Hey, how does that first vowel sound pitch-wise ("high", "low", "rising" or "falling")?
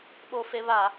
high